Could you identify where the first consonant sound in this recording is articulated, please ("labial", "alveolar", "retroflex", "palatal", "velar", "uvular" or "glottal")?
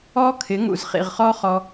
velar